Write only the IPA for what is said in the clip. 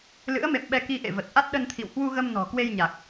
l ɨ̰˧˥ ə̯ m ḛ˧˨ m ɓ ɛ˧ k i˧ ʔ ḛ˧˨ v ə˨˩ t̚ ʔ a˦˥ t̚ ɗ ə˧ n t̪ʰ ḭ˧˨ w h w u˧ ɣ ə˧ m n ɔ̤˨˩ k w e˧ j ɲ a˨˩ k̚

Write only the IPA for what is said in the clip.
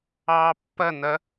ɑː pː ɐ n̪ ɐ

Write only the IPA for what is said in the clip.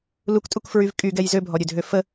l u k tʼ u k f ɹ y v kʼ y ɡ ɛ j z ø bʱ ɔ ɾʲ ø dʱ ø f ə

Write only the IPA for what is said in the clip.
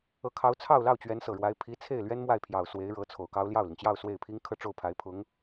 ɤ˧˥ kʰ ɑ˧˥ ʊ̯ t͡sʰ ɑ˥˧ ʊ̯ l ɑ˥˩ ʊ̯ t͡ɕ ɥ ɛ˧˥ n s ɤ˨˩ ɻ w a˧˥ ɪ̯ pʰ i˧˥ t͡sʰ e˥˩ ɪ̯ l ɥ ɛ˥ n m w a˥˩ ɪ̯ pʰ j ɑ˨˩ ʊ̯ s w e˧˥ ɪ̯ ɻ ɤ˧˥ t͡sʰ o˨˩ ʊ̯ k ɑ˥ ʊ̯ l j ɑ˥˩ ʊ̯ l i˩ ŋ t͡ɕ j ɑ˥˧ ʊ̯ s w e˥˩ ɪ̯ pʰ i˥ ŋ kʰ ɤ˥˧ ʈ͡ʂ o˥˩ ʊ̯ pʰ a˧˥ ɪ̯ pʰ ʊ˧˥ ŋ

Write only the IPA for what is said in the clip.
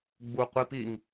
ɡ͡b u qʷ i p i ŋ

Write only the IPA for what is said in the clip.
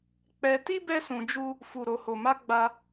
k͡p ɛ˧ t i˦ b ɛ˦ s ũ˧ d͡ʒ u˦ | f u˨ ɾ o˨ h o˨ m a˧ ɡ͡b a˧

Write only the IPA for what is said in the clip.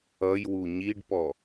ʌ j w u ɲ i ɖ p ɔ

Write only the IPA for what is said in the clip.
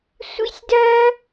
sʷ ḭ˦ sʲ d ɜ˦

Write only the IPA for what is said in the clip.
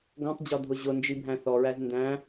ɡ ɔ̃ tˤ d͡ʑ ɔ dʱ ʊ ʑ ʊ n d͡ʒ i bʱ æ̃ θ ɔ ɹ æ z n d æ̃

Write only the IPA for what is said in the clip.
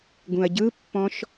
ɡ ũ ɐ̯ ɟ ɯ pː ɔ̃ ʃ

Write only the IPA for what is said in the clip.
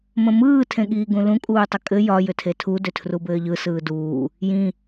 m ə̃ m ɯː tʰ ẽ ɠ iː ɡ ũ l ũ kʼ uː tˤ ə kʼ ɘ j ɒ j ʏ tʰ e tʰ u d ʏ tʰ r u b ɘː ʎ ɯ s ɯː d uː | j ĩ

